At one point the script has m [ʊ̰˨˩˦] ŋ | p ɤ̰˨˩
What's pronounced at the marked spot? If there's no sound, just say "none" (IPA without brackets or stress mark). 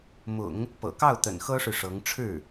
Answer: ʊ̰˨˩˦